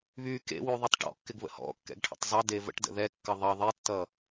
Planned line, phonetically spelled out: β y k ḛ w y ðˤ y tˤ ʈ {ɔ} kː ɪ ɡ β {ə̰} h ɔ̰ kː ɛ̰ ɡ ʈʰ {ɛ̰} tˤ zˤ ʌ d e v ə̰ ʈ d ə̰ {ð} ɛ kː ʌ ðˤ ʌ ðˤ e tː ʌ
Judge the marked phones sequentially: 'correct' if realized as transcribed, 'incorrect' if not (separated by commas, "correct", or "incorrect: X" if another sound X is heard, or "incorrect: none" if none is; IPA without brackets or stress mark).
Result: incorrect: ɔ̰, correct, incorrect: ə̰, correct